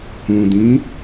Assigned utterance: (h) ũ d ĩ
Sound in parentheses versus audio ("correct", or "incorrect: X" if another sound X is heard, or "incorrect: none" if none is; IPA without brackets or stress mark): correct